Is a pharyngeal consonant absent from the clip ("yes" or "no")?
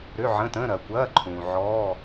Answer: no